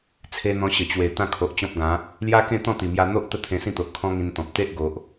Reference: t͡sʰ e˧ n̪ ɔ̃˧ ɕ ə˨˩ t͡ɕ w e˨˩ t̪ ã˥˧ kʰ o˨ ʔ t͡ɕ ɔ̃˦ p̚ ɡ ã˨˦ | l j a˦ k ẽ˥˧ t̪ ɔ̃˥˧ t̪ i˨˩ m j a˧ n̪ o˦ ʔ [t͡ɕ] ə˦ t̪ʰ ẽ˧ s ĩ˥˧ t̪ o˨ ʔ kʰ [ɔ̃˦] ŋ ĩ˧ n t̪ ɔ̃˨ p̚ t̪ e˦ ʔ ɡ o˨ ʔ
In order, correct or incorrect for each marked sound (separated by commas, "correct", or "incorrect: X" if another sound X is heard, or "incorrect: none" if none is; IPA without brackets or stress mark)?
incorrect: t̪, correct